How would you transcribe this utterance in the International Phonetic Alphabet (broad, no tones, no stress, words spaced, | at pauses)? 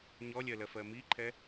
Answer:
ɲɔlʲɜlɜf ɜmiǃʰɛ